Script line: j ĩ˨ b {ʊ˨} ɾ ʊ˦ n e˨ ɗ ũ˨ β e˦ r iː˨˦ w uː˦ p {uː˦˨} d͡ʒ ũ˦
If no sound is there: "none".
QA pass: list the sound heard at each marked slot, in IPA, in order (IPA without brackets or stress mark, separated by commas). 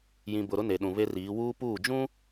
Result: ʊ˨, uː˦˨